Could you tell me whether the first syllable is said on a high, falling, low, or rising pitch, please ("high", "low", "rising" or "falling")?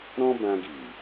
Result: high